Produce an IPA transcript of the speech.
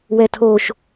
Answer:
w ɛ tʰ o ʃ

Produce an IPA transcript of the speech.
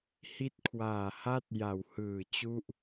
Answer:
h i˦˥ t̚ kʰ w aː˨˩ h a˦˥ t̚ j a˩˦ w h ɯː˨˩ t͡ɕ u˥˩ ʔ

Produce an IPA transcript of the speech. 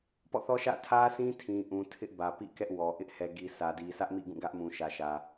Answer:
p ɔ̰˦˨ θ ɔ˦ ʃ ä̰˦˨ tʰ ä˦ sʰ ĩ˦ tʰ ĩ˨ ʔ ũ˨ tʰ ɪ˦ ʔ b ä˨ p ḭ˦˨ k ɛ˦ ʔ w ɔ˨ ʔ ɪ˦ ʔ h ɛ˨ ɡ i˨ sʰ ä˨ d i˨ sʰ ä˦ ʔ m ḭ˦˨ ɡ ũ˦˨ ɡ ä˦ ʔ m ũ˨ ʃ ä˨ ʃ ä˨

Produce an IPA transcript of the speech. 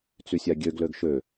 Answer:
t͡s y sʲ a ɡʲ ø ɡ l ø ɡ ʃ ø

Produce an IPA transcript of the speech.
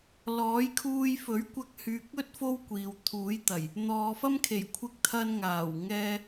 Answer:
l ɔː˨˥ j kʰ uː˧ j f ɵ˨˥ ɥ kʷ ɐ˧ k̚ h yː˨ k̚ ɵ˥ t̚ f o˥ w kʷ iː˨ w t̪ʰ uː˨˥ j t̪ ɐ˨˩ j | n̪ ɔː˨ f ɐ˥ m kʰ e˨˩ j kʷʰ ɪ˧ k̚ t̪ʰ ɐ˧ n ŋ aː˨˩ w ŋ ɛː˧

